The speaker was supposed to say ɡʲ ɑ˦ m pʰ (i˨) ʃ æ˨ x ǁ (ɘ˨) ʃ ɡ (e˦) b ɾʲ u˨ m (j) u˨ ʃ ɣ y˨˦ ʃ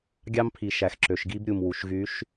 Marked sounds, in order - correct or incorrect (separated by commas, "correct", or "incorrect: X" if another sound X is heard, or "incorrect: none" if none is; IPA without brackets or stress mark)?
correct, incorrect: ø˨, incorrect: i˦, incorrect: w